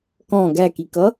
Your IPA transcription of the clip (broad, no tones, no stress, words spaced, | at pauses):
kɔ̃ ɡækikʌ